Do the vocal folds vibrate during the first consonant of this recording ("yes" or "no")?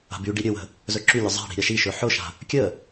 yes